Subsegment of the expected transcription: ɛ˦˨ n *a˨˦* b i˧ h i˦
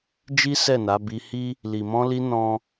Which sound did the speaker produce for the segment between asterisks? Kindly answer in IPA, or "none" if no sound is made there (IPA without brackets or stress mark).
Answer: a˨˦